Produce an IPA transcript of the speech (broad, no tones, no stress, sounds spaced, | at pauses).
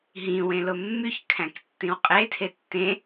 ɦ ĩ w ẽ l o mː y ç kʰ æ̃ k tː ĩ w qʼ e tʰ e tː ẽ